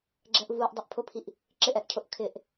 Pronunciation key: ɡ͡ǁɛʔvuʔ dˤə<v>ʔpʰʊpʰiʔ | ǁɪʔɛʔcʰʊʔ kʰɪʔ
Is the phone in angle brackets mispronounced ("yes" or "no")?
yes